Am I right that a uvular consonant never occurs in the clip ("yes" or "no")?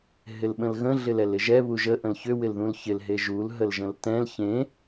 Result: yes